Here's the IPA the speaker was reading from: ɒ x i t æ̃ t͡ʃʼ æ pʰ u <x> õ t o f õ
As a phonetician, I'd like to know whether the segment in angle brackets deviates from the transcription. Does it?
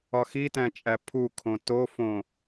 yes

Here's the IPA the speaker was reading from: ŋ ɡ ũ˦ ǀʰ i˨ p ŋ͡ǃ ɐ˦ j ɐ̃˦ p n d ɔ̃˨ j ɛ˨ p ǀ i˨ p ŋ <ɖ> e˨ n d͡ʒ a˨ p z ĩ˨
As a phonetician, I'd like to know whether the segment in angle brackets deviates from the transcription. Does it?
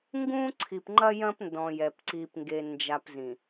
yes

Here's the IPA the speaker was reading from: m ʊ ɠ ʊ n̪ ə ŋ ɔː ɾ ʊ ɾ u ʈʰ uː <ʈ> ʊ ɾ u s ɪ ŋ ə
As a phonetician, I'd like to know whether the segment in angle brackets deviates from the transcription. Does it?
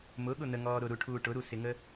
no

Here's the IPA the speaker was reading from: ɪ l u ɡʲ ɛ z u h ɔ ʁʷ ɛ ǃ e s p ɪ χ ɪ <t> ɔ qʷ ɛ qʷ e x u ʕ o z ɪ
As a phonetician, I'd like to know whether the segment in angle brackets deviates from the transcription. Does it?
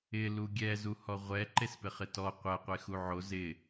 no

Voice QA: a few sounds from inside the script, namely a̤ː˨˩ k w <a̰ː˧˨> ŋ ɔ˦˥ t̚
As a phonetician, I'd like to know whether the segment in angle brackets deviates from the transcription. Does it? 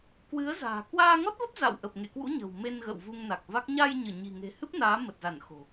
yes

